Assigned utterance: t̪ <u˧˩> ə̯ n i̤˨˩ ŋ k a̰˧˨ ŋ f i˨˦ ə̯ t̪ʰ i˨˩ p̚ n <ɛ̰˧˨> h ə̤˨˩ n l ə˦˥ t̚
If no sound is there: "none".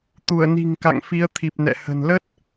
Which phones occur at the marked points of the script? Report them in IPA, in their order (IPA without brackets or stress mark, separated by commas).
u˧˩, ɛ̰˧˨